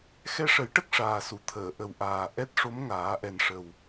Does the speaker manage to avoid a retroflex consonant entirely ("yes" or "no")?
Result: no